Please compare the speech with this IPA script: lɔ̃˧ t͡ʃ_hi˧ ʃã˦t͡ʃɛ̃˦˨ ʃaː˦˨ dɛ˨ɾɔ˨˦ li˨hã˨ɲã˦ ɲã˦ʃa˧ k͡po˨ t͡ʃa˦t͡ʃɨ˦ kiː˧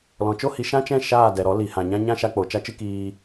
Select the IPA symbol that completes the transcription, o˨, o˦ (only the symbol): o˦